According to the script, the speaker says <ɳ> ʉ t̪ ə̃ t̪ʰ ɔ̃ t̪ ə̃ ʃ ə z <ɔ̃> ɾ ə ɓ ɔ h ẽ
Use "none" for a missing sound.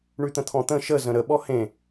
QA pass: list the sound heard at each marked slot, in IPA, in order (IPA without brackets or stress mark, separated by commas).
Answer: ɳ, ə̃